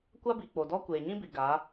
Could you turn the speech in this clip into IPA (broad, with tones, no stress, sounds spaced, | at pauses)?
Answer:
kʷ a˦ b i˨ k͡p o˨ d ɔ˦ kʷ eː˨ ɲ ĩ˦ b i˨ ɡ a˨˦